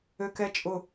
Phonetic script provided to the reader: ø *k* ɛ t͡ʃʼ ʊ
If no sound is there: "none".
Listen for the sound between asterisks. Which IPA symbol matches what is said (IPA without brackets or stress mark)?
k